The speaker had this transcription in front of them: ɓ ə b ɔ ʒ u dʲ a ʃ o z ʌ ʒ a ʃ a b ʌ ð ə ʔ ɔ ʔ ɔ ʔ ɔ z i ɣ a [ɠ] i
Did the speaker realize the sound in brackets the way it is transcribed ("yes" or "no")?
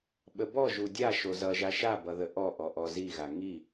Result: no